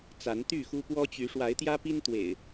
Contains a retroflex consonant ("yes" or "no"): yes